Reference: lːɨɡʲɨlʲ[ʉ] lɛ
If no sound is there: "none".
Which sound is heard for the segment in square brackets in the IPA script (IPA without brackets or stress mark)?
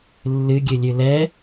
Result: ʉ